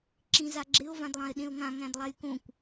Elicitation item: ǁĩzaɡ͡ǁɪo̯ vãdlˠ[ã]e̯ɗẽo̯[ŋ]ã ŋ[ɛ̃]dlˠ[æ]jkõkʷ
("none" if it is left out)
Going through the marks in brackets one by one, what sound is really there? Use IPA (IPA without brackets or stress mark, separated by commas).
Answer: ã, ŋ, æ̃, æ